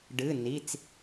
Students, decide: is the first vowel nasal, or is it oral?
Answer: oral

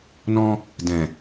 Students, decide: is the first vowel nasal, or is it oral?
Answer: nasal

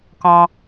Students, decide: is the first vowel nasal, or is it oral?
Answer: nasal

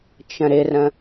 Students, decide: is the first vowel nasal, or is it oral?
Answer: nasal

